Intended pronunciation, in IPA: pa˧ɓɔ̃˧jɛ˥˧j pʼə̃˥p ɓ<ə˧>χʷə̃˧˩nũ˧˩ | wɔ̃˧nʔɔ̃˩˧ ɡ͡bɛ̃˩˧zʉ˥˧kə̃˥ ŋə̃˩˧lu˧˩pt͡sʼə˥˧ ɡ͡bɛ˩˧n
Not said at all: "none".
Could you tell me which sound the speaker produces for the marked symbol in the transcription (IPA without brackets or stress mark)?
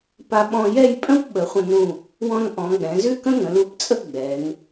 ə˩˧